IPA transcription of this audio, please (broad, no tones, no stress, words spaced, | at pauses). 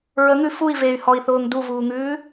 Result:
ɹəŋʉ fui̯ vey̯hɔi̯θʊːŋ duvuːŋʉː